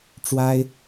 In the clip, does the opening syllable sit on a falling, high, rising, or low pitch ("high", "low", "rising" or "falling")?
high